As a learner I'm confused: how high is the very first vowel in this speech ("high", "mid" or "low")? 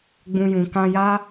high